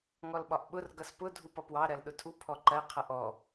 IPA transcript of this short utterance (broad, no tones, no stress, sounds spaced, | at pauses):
ŋ ɔ l ɓ ɒ ʔ ɓ ʊ r ɡ ʌ s p ʊ dʱ u p ʌ p w ɑ ɾ ɜ l ɗ ʊ tʰ u pʰ ɔ ǃ ɜ qʰ ʌ ʔ ɔ